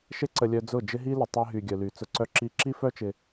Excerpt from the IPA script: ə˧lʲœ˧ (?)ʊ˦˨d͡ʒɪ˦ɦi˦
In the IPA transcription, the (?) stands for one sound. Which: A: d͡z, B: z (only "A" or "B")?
A